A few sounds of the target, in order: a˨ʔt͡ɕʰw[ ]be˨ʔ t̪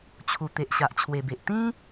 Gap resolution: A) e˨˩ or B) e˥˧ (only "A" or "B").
A